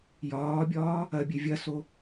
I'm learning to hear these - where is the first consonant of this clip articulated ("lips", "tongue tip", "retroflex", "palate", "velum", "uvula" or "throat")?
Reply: palate